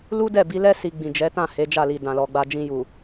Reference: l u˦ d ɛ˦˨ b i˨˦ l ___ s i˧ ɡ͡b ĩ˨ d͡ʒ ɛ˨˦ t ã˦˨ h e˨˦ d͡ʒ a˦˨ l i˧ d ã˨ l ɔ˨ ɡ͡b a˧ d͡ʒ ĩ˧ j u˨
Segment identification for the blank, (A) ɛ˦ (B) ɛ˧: A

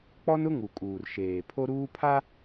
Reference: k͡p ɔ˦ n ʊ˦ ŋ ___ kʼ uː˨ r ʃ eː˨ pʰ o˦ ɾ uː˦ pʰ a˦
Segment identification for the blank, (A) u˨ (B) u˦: A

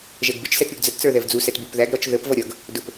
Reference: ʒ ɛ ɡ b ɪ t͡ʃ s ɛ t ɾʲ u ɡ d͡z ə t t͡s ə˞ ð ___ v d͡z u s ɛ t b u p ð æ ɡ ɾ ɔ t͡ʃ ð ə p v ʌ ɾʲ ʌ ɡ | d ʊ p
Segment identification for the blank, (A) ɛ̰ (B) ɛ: B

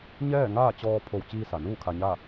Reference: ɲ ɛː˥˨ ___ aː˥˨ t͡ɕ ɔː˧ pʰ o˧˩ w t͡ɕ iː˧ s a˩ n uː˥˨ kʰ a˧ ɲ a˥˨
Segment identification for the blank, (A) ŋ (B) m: A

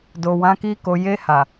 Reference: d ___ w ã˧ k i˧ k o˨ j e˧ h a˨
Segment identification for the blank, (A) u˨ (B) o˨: B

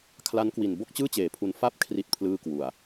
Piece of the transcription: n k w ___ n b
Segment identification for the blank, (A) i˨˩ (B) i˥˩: A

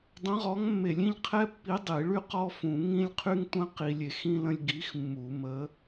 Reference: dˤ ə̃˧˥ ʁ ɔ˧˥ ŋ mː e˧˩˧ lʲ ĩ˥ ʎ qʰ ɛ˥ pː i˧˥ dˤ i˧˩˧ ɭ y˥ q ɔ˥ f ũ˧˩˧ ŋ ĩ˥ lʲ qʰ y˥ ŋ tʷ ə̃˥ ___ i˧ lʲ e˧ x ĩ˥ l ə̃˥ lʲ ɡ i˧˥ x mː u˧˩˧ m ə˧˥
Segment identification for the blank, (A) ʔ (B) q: B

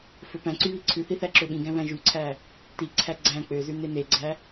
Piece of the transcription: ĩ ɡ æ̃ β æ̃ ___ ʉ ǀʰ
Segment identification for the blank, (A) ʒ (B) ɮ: A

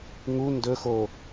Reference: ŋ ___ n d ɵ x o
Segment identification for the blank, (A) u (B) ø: A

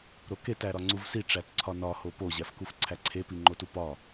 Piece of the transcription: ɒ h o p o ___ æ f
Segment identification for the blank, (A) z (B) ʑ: B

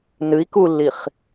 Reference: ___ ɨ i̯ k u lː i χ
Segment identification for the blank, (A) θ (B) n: B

